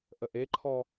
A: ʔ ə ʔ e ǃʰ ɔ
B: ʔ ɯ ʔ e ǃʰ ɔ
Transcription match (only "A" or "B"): A